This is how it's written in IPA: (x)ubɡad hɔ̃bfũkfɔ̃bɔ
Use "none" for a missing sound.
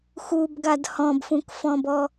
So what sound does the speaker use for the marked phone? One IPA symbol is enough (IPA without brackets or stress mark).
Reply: x